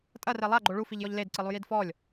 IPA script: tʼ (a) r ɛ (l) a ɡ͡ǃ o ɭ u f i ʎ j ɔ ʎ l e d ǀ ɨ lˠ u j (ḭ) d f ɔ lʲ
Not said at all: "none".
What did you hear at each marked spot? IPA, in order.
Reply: ɐ, lˠ, i

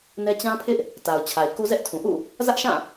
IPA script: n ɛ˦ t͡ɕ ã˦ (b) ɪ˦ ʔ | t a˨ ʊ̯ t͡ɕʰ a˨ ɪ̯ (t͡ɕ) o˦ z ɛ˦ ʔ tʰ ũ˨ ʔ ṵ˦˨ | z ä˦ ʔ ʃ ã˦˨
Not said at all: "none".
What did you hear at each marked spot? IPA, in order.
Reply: pʰ, k

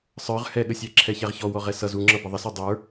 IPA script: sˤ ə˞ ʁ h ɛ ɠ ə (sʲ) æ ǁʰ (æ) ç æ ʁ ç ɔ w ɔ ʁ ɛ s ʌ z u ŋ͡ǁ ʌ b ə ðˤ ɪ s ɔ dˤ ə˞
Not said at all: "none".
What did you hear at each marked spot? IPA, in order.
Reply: sʲ, ɛ

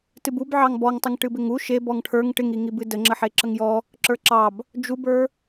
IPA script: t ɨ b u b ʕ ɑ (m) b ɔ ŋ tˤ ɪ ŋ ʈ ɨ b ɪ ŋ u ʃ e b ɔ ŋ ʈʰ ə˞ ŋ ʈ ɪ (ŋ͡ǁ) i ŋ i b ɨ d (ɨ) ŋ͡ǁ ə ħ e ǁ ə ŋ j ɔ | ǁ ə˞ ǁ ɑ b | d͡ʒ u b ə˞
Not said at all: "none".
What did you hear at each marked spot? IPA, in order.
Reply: ŋ, ŋ, ə

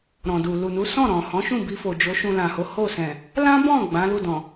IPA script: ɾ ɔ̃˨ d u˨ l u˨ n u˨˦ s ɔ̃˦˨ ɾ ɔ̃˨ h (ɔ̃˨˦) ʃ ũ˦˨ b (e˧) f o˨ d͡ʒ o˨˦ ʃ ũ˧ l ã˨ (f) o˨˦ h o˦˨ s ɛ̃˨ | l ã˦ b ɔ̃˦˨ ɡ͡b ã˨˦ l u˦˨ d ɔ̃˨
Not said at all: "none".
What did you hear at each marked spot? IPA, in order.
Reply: ɔ̃˨˦, i˧, h

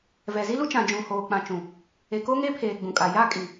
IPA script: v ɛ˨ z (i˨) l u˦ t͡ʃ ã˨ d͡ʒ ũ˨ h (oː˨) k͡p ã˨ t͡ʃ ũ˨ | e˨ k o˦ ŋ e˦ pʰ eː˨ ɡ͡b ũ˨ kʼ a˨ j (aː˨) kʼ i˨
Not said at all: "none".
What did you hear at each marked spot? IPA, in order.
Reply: i˦, oː˨, aː˦

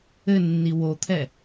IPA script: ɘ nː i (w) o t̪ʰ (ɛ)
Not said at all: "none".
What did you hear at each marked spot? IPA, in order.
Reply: w, ɛ

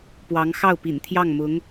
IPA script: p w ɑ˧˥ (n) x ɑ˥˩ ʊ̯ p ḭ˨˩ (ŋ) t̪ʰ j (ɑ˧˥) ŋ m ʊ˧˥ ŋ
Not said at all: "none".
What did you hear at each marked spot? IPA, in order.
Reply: ŋ, n, ɑ˥˩

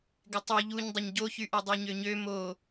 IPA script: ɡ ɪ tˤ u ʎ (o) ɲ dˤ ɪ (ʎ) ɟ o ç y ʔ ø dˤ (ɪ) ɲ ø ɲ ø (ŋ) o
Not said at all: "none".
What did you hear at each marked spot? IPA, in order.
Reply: u, ɲ, y, m

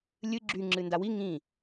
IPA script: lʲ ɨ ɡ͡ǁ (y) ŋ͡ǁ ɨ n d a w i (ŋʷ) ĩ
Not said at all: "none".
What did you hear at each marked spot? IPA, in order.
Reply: y, ŋ

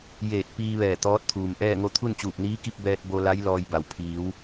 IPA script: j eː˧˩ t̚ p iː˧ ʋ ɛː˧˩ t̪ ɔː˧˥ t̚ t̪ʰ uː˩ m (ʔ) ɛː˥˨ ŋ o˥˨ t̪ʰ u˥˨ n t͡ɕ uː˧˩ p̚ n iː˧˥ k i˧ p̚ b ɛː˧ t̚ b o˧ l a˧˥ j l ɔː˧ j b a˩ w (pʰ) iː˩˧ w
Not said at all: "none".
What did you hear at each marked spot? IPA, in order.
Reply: ʔ, pʰ

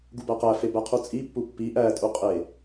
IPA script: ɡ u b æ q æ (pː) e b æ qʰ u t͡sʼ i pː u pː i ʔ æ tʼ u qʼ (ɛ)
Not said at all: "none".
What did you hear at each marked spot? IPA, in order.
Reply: f, e

